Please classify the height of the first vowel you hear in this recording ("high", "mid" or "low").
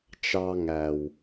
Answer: low